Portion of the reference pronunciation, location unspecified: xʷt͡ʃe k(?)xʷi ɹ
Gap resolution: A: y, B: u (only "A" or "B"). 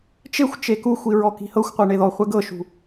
B